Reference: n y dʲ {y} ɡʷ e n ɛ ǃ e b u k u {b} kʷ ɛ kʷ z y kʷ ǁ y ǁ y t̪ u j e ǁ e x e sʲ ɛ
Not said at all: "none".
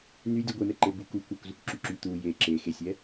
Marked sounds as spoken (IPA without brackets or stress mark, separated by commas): u, none